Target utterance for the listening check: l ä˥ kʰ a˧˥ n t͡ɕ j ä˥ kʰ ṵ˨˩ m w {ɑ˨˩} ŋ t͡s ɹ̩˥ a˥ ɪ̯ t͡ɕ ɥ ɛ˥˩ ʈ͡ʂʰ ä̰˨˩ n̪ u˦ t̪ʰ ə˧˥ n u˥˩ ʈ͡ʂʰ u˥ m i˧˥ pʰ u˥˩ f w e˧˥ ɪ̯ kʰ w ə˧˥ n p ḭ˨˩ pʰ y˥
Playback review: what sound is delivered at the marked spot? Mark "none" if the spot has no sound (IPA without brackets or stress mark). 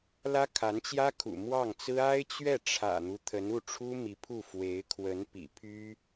ɑ˥˩